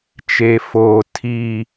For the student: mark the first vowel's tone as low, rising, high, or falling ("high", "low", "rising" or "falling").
high